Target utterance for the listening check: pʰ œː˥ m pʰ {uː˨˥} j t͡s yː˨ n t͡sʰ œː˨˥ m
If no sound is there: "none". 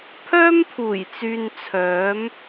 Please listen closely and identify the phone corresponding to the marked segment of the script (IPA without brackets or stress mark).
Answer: uː˨˩